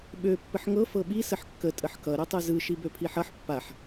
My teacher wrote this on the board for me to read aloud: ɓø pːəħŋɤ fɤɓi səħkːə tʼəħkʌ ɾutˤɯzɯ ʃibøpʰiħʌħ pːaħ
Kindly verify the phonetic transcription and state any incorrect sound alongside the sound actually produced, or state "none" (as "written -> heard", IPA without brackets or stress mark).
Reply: none